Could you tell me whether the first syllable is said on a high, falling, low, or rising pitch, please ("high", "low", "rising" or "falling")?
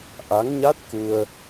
rising